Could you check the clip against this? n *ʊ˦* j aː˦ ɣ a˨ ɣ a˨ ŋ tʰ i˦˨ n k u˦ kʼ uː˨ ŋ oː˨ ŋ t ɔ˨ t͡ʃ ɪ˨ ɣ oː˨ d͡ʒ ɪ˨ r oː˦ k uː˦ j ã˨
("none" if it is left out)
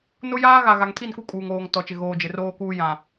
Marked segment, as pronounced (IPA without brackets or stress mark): ʊ˦